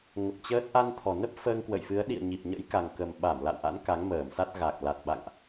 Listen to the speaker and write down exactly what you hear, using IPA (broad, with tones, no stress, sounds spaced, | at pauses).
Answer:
ŋ ə˨˩ p̚ t͡ɕ əː˦˥ t̚ ʔ a˧ n t̪ʰ ɔ˨˩ n ə˦˥ p̚ f əː˧ ŋ k w ə̰˧˨ j f ɨ˨˦ ə̯ ɗ ḭ˧˨ ə̯ ɲ i˨˩ p̚ ɲ ə̰˧˥ j k a˨˩ ŋ k ə˨˩ m ɓ a˧˩ m l a̰˧˨ w ʔ a̰˧˥ n k a˨˦ ŋ m əː˧˩ m s a˦˥ t̚ ɣ a˨˩ k̚ l a˨˩ t̚ ɓ a̰˧˨ ŋ ʔ